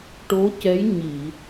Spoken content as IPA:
ʈ o˧˥ c ɛ˧˥ j ɲ i˨˩˨

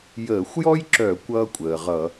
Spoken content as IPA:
j əː˧˩˧ xʷ j ɔ˥ j ǁ œ˧˩˧ kʷ ʌː˥ kʷʼ əː˩ ʁ ʌ˧˩˧

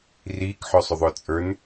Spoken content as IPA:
r iː k ħ œ sˤ ʊ ðˤ ʊː t͡sʼ ə˞ n

